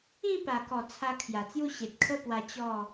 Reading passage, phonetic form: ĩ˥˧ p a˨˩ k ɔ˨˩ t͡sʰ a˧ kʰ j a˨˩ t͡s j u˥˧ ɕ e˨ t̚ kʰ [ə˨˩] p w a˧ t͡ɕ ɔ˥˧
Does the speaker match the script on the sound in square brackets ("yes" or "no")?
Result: no